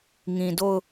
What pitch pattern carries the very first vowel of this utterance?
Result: low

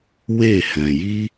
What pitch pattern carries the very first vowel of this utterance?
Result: falling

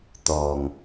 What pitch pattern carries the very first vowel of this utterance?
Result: low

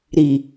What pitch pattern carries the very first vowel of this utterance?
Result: low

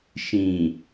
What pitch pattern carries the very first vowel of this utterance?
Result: low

